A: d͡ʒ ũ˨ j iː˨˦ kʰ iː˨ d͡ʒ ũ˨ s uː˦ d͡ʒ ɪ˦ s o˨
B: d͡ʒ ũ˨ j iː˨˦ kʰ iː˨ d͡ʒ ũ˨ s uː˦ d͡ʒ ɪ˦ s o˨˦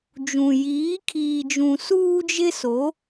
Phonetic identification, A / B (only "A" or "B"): B